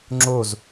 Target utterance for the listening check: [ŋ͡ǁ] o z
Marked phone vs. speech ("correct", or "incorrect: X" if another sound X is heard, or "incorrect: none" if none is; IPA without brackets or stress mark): correct